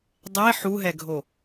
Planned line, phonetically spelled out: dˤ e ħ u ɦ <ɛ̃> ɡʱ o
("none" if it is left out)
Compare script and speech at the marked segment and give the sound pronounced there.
ɛ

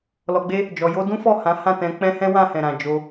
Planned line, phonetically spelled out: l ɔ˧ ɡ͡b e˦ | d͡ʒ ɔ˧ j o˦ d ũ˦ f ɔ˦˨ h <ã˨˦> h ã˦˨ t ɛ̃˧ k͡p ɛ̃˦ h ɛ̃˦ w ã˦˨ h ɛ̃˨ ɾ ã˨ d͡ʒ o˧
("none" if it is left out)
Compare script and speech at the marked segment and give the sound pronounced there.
ã˨˦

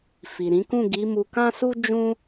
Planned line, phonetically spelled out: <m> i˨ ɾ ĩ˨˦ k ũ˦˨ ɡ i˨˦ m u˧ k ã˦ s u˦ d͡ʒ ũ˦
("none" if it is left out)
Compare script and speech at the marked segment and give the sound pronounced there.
f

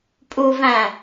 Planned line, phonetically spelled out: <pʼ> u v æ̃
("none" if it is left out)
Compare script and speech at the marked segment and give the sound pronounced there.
pʼ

